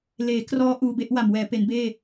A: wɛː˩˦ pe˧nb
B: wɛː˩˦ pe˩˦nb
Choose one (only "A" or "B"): B